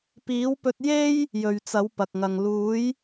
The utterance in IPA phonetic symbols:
p iː˨˥ w p ɵ˧ t̚ j e˥ j | j ɵ˨ ɥ t͡s ɐ˨˥ w p ɐ˨ k̚ ŋ ɐ˨ ŋ l uː˨˥ j

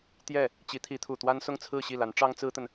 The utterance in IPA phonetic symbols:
t̪ j ɛ˥˩ | t͡ɕ i˧˥ t̪ʰ i˧˥ t̪ʰ u˨˩ t̪ w a˥ n s ʊ˥˧ ŋ t͡sʰ ɹ̩˥˧ ɕ i˥˩ l a˧˥ n ʈ͡ʂ ɑ˥ ŋ t͡s ɹ̩˥ t̪ ə˨ n

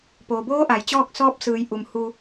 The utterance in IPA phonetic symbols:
p oː˩ b oː˧˥ ʔ a˩ j t͡ɕ ɔː˥˨ k̚ s ɔː˧˥ p̚ s ɯː˩˧ j ʔ u˩ m h u˧

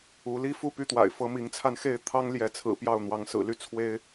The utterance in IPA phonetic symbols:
u˨˦ l i˦ f u˥˨ p y˥˨ t̪ w a̰˨˩ ɪ̯ f ɤ˦ m i˨˦ ŋ t͡sʰ a˧ n x e˥˨ ɪ̯ t̪ʰ ɑ˦ ŋ l j ɛ˨˦ t͡sʰ ɹ̩˨˩ p j ɑ˥˨ ʊ̯ n̪ w ɑ˨˦ ŋ s ɹ̩˨˩ l y˥˨ t͡sʰ w e˦ ɪ̯

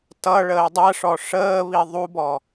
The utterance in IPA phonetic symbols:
t ʌ ɭ əː dˤ ɜ ʂ ɔ ʂ əː β i ðˤ u b ɔ

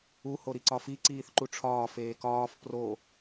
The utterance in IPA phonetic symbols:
u h o ɾ i ǀ ɒ f i ǀ iː θ ǃ u ʈ͡ʂʰ ɒː f eː k ɒː f p r o

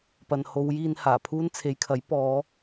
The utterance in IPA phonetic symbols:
p ɐ˨ n h o˨˧ w j iː˧ n h aː˨˩ pʰ uː˥ n t͡sʰ e˨˧ j kʰ ɐ˨˥ j p ɔː˨˧

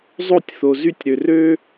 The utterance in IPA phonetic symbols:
zˤ o˥˧ tʲ θ o˧ z y˥˧ tʲ ɾ ø˧ r ø˥

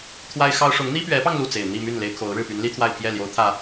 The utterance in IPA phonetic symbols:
t̪ʰ w a˥ ɪ̯ x ɑ˥ ʊ̯ ʂ ʊ˧˥ ŋ n̪ i˥ p ɥ ɛ˧˥ p ɑ˧ ŋ l u˥˩ t͡s e˨˩ ɪ̯ n̪ i˥˧ m y˥˩ n l e˥ ɪ̯ kʰ o˧˥ ʊ̯ ɻ ɻ̩˥˩ p y˧˥ n l i˥ t̪ʰ w a˥˧ ɪ̯ pʰ j ɛ˥˩ l j o˧˥ ʊ̯ t̪ʰ ä˨˩˦

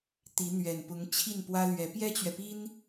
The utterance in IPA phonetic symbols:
t̪ i˧˥ n̪ ɥ ɛ˨˩ n p ʊ˧˥ ŋ t͡ɕʰ i˥˩ n p w ä˥ l ɥ ɛ˧˥ p j ɛ˥ t͡ɕ ɥ ɛ˨ p i˥ n

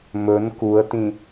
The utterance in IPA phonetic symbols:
m ɵ n k u ə̯ t ĩ

